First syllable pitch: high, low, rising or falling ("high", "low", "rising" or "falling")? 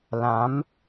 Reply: rising